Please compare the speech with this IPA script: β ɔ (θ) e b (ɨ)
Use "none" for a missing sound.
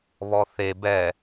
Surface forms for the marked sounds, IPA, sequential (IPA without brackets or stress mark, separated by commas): θ, ɛ